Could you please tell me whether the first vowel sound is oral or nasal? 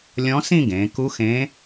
nasal